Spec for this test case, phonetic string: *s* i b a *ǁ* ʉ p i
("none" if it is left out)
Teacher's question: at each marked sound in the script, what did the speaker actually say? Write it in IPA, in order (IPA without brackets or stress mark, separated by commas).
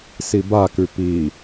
s, k